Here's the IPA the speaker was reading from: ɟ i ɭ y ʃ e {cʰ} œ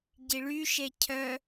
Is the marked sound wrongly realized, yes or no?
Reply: no